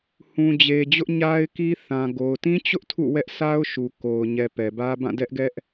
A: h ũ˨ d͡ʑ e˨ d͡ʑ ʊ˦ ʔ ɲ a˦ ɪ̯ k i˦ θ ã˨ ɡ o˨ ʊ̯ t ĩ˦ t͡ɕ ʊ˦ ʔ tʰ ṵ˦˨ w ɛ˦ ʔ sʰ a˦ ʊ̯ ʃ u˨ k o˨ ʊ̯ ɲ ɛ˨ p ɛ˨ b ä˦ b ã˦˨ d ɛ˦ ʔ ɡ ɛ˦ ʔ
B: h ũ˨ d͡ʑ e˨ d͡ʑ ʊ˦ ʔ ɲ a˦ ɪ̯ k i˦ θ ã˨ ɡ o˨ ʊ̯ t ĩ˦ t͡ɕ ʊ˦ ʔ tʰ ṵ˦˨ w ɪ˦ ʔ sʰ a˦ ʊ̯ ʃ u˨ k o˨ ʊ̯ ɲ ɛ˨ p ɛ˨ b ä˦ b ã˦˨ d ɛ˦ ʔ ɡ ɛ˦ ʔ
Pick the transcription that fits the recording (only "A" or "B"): A